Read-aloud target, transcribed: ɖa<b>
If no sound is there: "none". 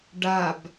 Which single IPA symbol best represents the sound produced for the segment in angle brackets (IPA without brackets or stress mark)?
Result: b